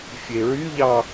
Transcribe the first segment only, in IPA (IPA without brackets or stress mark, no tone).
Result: fʲ